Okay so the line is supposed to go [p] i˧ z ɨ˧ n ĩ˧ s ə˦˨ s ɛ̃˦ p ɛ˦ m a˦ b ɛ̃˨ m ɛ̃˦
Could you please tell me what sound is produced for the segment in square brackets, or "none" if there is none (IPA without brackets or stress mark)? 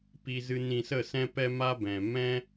p